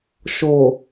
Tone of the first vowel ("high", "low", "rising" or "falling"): low